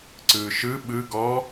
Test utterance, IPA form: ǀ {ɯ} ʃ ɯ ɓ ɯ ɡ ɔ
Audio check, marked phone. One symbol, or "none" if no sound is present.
ɯː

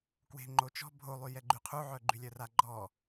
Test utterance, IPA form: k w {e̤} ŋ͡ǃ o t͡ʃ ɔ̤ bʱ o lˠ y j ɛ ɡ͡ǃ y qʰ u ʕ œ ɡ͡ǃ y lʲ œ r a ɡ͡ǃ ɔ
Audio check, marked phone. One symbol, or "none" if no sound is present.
e̤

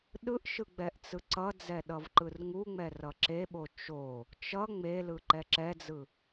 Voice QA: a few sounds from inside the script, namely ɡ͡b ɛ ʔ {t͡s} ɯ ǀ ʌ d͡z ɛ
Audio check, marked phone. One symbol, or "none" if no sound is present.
t͡s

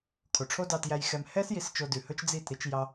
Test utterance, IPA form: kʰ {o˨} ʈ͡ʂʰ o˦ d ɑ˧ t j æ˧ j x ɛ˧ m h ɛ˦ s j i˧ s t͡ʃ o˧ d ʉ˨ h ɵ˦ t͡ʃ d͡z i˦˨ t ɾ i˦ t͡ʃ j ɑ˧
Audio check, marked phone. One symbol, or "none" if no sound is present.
o˨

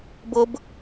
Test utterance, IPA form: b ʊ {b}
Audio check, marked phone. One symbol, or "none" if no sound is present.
b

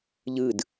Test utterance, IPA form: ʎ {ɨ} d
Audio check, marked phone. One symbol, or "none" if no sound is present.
ɨ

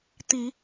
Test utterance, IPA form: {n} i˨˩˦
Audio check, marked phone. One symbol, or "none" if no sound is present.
t̪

